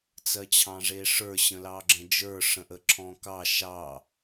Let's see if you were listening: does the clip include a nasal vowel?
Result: yes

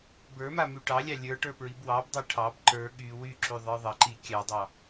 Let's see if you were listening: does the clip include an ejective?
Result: no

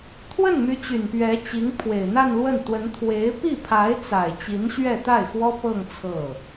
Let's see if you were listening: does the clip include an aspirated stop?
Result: yes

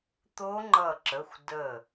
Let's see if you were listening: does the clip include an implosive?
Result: no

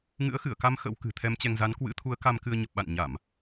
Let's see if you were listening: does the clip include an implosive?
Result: yes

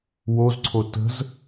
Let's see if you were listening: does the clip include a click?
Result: yes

